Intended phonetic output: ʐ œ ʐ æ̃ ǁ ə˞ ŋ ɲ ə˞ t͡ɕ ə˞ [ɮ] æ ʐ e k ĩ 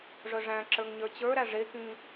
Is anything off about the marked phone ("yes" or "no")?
yes